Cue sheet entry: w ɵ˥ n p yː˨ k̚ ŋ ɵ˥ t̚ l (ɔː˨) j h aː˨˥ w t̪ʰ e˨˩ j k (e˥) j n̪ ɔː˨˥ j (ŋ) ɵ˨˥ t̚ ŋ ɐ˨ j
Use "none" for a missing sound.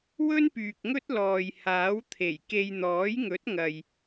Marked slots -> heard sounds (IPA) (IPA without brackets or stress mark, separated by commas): ɔː˨, e˧, ŋ